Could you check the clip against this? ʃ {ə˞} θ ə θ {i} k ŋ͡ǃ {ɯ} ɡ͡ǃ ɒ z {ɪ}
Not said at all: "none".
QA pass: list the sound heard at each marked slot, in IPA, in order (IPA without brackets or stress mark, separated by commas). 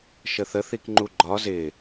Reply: ə, i, u, ɪ